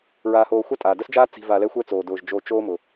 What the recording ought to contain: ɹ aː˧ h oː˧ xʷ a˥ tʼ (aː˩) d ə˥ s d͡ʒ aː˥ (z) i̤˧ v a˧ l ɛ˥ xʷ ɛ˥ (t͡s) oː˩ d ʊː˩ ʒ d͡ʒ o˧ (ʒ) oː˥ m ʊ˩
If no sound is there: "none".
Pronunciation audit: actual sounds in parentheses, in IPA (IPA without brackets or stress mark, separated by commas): aː˩, t͡s, t͡s, t͡ʃ